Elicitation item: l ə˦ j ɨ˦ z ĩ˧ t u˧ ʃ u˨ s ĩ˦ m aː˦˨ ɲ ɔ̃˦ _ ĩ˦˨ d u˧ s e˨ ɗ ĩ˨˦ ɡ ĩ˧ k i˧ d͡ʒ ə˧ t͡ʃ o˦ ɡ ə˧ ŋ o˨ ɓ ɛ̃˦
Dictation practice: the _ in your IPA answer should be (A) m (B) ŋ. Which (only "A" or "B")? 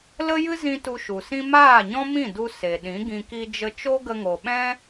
A